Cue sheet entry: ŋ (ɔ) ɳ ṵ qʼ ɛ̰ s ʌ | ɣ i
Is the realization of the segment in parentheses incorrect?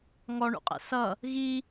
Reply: no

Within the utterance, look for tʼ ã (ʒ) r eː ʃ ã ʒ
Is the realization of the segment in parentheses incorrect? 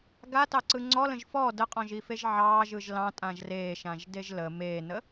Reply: no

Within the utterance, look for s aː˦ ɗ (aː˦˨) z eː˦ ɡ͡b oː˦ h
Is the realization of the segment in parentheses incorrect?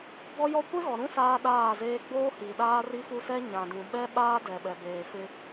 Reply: no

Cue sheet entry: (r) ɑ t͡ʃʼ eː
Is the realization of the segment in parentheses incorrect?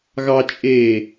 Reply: yes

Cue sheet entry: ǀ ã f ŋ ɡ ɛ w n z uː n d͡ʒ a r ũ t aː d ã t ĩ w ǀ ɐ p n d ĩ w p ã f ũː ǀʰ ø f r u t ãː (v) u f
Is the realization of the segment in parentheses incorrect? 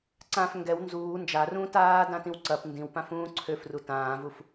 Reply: no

